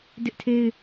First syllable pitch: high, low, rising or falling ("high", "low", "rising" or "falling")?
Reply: high